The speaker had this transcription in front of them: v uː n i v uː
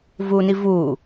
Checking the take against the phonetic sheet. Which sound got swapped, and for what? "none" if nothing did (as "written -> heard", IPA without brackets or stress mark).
none